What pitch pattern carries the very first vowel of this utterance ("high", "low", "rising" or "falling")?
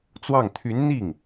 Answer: falling